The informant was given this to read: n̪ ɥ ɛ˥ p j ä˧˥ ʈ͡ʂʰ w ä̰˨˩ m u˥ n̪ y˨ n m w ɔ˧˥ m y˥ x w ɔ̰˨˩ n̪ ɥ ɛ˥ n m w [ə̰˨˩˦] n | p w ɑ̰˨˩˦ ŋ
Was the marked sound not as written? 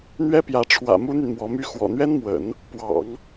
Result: no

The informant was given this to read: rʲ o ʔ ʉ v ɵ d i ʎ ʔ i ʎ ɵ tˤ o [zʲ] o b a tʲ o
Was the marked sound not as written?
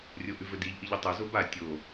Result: yes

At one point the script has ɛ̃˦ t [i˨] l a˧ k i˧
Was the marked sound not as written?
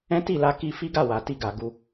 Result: yes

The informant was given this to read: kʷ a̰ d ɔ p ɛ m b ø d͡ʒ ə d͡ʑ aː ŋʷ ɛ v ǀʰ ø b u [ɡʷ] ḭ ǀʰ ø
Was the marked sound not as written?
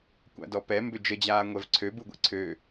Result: no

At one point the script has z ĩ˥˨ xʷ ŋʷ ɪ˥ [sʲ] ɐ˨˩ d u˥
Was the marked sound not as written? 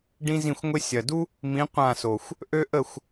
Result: no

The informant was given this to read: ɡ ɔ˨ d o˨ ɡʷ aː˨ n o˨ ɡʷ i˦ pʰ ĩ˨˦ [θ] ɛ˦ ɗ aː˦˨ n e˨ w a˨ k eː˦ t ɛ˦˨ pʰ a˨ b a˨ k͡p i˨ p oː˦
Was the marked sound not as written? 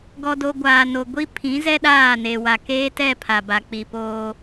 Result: yes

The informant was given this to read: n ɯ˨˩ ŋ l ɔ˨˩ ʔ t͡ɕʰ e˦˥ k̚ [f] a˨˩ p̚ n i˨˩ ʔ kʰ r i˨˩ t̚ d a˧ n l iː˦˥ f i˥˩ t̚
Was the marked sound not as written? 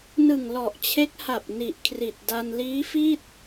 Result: yes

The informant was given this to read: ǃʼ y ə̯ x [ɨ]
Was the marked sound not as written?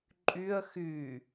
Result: yes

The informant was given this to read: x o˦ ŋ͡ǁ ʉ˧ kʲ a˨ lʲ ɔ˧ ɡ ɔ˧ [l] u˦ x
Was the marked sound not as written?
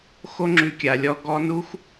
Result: yes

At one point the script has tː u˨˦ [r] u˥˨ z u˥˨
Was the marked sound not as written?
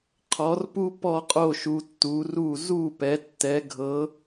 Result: no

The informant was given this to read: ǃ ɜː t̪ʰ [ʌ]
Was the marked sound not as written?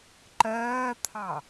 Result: yes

